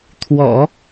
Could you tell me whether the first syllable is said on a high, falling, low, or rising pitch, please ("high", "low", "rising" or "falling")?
low